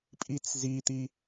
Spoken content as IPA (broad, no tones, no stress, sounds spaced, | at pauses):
pʼ i t͡s z i t̪ i